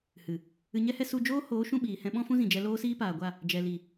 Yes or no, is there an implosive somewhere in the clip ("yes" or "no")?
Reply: yes